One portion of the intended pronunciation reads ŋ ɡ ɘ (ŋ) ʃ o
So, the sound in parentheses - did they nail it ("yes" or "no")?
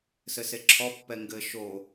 no